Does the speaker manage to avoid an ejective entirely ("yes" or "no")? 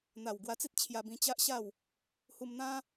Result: yes